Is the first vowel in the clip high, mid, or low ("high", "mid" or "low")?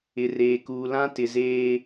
high